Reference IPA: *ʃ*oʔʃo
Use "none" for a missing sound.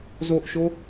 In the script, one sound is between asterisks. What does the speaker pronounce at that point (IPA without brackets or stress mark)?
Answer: z